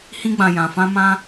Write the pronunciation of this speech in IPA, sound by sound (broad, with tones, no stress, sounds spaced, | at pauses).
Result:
h ĩ˧ ɡ͡b ã˨ j ã˨ f ã˧ m ã˧